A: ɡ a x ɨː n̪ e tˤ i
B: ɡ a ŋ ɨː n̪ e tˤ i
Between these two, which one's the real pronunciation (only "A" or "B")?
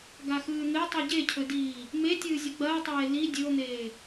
A